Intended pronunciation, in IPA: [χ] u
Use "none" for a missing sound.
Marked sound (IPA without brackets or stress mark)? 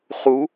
χ